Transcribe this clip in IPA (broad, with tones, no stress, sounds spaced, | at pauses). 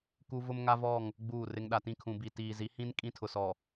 k u˦ v ʊ˦ m ŋ a˦ v ɔ˦˨ ŋ | ɡ͡b uː˦˨ r ɪ˦ ŋ ɗ a˨ t ĩ˦˨ kʰ ũ˨ b i˨ t iː˨ z i˨˦ h ĩ˦ n kʼ ĩ˦ tʰ ʊ˨ s ɔ˨